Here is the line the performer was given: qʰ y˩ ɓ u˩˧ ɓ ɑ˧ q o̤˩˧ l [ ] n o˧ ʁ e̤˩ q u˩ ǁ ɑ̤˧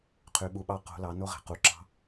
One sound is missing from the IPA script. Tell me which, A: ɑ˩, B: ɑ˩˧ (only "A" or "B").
B